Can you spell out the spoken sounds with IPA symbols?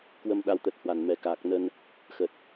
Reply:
k w ə˧ m ɗ a˧ w t̪ ə˨˩ t̚ h w a˨˩ n m ɛ˨˩ k aː˨˩ k̚ n ə˧ n | x ə˨˩ t̚

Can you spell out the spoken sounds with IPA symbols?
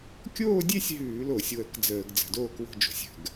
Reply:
kʲ oː˥˧ dʲ e˥˧ sʲ ɦ ʉː˧˩˧ l o˧˩˧ sʲ w ə˧˩˧ k d͡z əː˧˩˧ ɡ d͡z ə̤˧˩˧ d oː˥˧ k w o̤˥˧ d͡ʒ o̤˧˩˧ sʲ ə̤˧˩˧ ɡ

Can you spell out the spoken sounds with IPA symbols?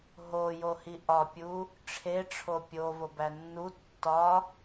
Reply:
ɦ o j o h i ʔ ɒ pʲ u | ʈ͡ʂʰ e ʈ͡ʂʰ o pʲ o v o b æ nː u tː ɒ

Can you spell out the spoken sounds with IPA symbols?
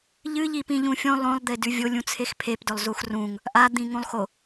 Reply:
ʎ ɨ ʎ i p ĩ ʎ ũ fʲ õ lˠ õ lˠ d̪ e d ʉ vʲ o lʲ ũ t͡sʰ e x pʰ e p d ɵ lˠ z u x r ũ ŋ | ʔ a d̪ ĩ ŋ ũ lˠ x o

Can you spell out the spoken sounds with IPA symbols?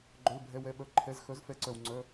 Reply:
ɡ͡ǃ œ˩˧˩ l bʱ ɛ˩˧˩ w ɛ˩˧˩ ɓ œ˩˧˩ ǃʰ ɛ˩˧˩ z x œ˩˥ z f ɛ˩˥ ǀ œ˩ w ŋ͡ǀ œ˩˧˩

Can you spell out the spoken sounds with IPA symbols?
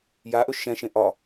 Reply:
j a ʔ ɵ ʃ ɛ̃ ʃ ẽ ʔ ɒ

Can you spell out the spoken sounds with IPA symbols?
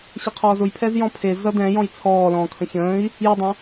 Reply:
ɕ ə qʰ ɔː z ʊ j pʰ ɛ z j ɔ̃ pʰ e z ʌ d ɛ̃ j ɔ̃ j t͡sʰ ɔː l ɔ̃ː kʰ ə̃ ç ə̃ː i̯ | j ə dˤ ə̃

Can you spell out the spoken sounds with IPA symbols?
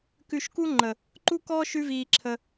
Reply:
k ʉ˧ ʃ k u˦ ŋ͡ǃ ə˨ | ǃ u˦ k ɔː˦ ʃ ʉ˦ v iː˧ ǁʰ ə˧

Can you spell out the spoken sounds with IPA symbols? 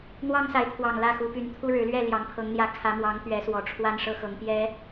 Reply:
n̪ w ɑ˦ ŋ s a˨˦ ɪ̯ t̪ʰ w ɑ˨˩ ŋ l ä˥˨ x u˨˦ p y˨˦ n t̪ʰ u˦ ɻ ɻ̩˨˦ l ɥ ɛ˥˨ l j ɑ˨˦ ŋ pʰ ɤ˨˦ ŋ n̪ j ä˨˦ kʰ ä˨˦ m w ɑ˨˦ ŋ t̪ ɥ ɛ˨˦ s w ɔ˨˩ ʈ͡ʂʰ w a˦ n ʂ ɤ˦ x ɤ˨˦ ŋ p j ɛ˨˦

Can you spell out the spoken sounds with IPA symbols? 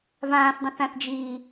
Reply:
v ãː s dˤ ə̃ θ ã θ d͡ʒ iː

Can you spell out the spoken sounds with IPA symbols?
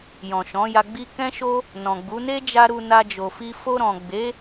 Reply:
j ɔ̃˨ ʃ ɔ̃˨˦ j a˧ ɡ͡b i˦ k ɛ̃˦ ʃ o˦ | n ɔ̃˨ ɡ͡b u˨˦ n e˦ d͡ʒ a˧ ɾ u˧ n a˧ d͡ʒ o˨ f i˧ f o˧ ɾ ɔ̃˨ ɡ͡b e˨˦

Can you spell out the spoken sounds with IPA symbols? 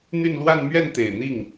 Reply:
n̪ y˥˧ n l w a˥˧ n m ɥ ɛ˥˩ n t̪ e˨˩ ɪ̯ n̪ i˥˩ ŋ

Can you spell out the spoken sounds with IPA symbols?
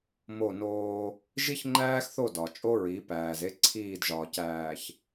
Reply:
m o˦˨ n oː˦ | ʒ i˦ ç ŋ͡ǃ æː˦ x θ o˦˨ d ɒ˨ t͡ʃʼ o˦ ɹ i˨˦ p æː˨ z e˦ ǀʰ iː˦˨ d ʒ ɒː˨ c æː˨ ç

